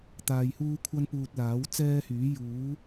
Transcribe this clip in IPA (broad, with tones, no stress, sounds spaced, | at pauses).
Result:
t̪ aː˧ j h uː˥ kʷʰ ɐ˥ n p uː˧ t̚ l aː˨˥ w t͡s ɛː˥ h yː˨˥ j uː˨˥